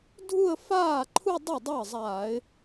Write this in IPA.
dʱu˥˧ə̯ faː˥˩ǃʰu˥˧ dˤu˥˩dˤa˥˩ə̯ zˤaː˧˩˧ɪ̯

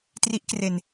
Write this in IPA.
tri˦˥ʔkre˨˩n

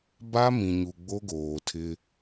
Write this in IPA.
ba˦mĩ˨ɲu˨ ɡ͡bo˦ɡoː˨tʰɪ˦

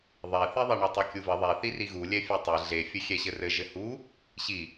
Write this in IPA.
ðˤeθiðˤe ɳotˤɛkʲuvɘ ðˤeθiri ɣulʲɛ fʲetˤe ɮefʲɘ xʲɛɕɘrɘ ʒɘhu | ɕi

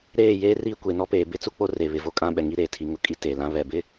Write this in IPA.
ɾeː˦˨jeː˦ riː˦kʷe˨ nɔ˦peː˨ bɪ˦t͡su˦k͡po˦re˨ βɪ˨vo˦kʼã˦ ɓɛ˨ŋi˦ɾeː˨ tʰi˨ŋʊ˨kʼi˦ te˨lã˦ βɛ˨bɪ˦

